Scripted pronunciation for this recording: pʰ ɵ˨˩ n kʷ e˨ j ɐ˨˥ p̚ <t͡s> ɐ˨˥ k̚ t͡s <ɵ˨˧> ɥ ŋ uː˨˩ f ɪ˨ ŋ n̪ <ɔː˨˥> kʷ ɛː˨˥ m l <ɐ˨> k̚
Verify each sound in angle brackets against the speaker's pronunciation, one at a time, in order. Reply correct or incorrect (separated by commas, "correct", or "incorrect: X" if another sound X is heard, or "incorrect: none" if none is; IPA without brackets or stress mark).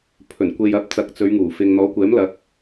correct, correct, correct, incorrect: ɐ˨˥